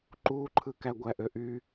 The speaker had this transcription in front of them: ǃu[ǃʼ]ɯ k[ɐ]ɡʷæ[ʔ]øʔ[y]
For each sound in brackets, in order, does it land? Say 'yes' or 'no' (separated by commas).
no, no, yes, yes